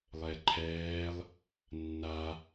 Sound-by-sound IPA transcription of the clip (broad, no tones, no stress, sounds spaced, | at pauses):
lˠ ɛ ǃʰ ɛː lˠ | nː a